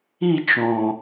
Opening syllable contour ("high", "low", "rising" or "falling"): falling